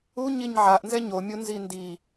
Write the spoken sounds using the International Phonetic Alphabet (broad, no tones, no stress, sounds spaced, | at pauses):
u ɲ i ɲ ʕ a ʔ n z ɛ ɲ o mʲ o n z i n d i